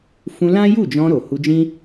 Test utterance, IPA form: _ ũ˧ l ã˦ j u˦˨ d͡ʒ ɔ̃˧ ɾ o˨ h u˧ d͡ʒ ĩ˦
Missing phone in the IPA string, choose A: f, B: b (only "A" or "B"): A